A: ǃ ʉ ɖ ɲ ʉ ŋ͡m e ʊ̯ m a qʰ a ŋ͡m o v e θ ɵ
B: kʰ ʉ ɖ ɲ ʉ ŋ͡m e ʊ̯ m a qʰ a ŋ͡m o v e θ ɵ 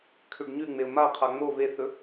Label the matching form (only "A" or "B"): B